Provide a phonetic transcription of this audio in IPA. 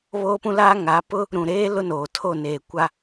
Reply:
β oː˦ p ũ˦ l aː˦ ŋ a˨˦ p ʊ˦ | ɾ ũ˨ ɾ eː˦ l ʊ˦ n oː˨ tʰ o˦˨ n eː˨ kʷ a˦

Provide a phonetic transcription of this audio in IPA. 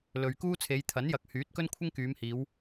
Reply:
l ɵ˨ ɥ k uː˥ t͡sʰ e˨˧ j t̪ʰ ɐ˨˥ n j ɐ˨˥ k̚ h yː˨˥ t̚ k ɵ˥ n kʷʰ ɪ˥ ŋ k yː˨˧ m h iː˨˧ w

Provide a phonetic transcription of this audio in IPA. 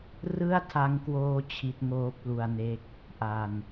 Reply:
r ɯ˥˩ a̯ tʰ a˦˥ ŋ k w oː˦˥ t͡ɕʰ i˦˥ t̚ ŋ oː˦˥ p̚ l u˧ a̯ n e˦˥ k̚ | ʔ a˧ n

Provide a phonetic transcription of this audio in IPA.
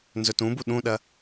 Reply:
n z ɵ t ũ b u ɗ ũ ɗ ɐ

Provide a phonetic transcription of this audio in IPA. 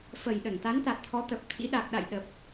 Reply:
f ə˨˩ j ɗ ə˧˩ n t̪ a˨˦ n t̪ a˨˩ t̚ t̪ʰ ɔ˨˦ t̪ ə˨˩ p̚ t̪ʰ ḭ˧˥ ɗ a˨˩ k̚ ɗ a̰˧˨ j ɗ ə˨˩ p̚

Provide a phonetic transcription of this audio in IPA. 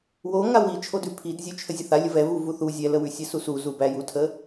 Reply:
w o ŋ a w i t͡ʃʰ o d ʉ pʰ i d zʲ ʉ t͡ʃʰ ə zʲ ə θ a lʲ ə v ɛ v u v u θ u zʲ ɛ l ə w ʉ sʲ ɛ s u s u z u b æ j u tʰ ə

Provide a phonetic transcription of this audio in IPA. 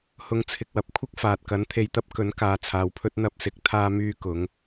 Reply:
h ʊ˨˧ ŋ t͡sʰ ɪ˨ k̚ w ɐ˨ p̚ kʷʰ ɪ˥ k̚ f aː˨ t̚ k ɐ˨˥ n t̪ʰ e˨˧ j t̪ ɐ˨˥ p̚ k ɵ˨˥ n k aː˨ t͡sʰ aː˨ w pʰ ɵ˥ t̚ n̪ ɐ˥ p̚ s ɪ˨˥ k̚ t̪ʰ aː˥ m yː˥ k ʊ˨˥ ŋ

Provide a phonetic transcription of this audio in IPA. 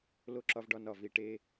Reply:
l o˦˨ ǁ ɒ˦ v ɖ ɒ˦ n ɒ˦˨ v i˨ ʈ e˦

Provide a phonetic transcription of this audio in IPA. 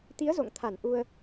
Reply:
t̪ i˨˦ ə̯ z o̰˧˨ ŋ t̪ʰ a˧˩ n ʔ u˧ ə̯

